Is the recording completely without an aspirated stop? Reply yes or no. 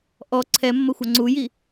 no